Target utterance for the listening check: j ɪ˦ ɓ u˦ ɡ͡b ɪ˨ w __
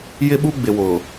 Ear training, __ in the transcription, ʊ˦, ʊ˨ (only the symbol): ʊ˨